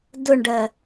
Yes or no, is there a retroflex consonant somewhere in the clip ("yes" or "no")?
yes